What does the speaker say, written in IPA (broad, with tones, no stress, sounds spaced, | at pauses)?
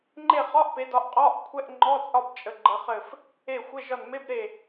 ŋ͡ǃ e˦˨ χ ɒ˧˥˧ ʔ p e˨˦ d ɒ˨˦ ʔ qʼ ɒ˧˥˧ ʔ kʷʰ ɛ˧˥˧ ʔ ŋ͡ǃ ɔ˧˥˧ t͡sʼ ɒ˦˨ b t͡ʃʼ ə˨˦ ɡ͡ǃ ə˨˦ χ ɘ˦˨ f | e˦˨ xʷ ɘ˧˥˧ ʒ ɒ˦˨ n m e˧˥˧ b ɾ e˦˨